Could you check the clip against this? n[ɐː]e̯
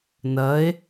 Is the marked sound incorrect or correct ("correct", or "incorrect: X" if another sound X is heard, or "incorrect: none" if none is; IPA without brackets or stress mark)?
correct